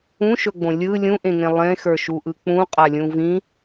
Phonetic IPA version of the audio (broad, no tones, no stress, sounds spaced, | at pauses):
ũ ʃ ɵ ɡ͡b õ lʲ ɯ lʲ ũ ʔ ẽ ŋ ẽ lˠ ẽ x ə˞ ʃ u ʔ ɯ k͡p ũ qʼ a lʲ ũ v ĩ